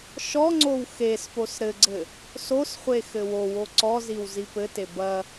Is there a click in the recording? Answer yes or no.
yes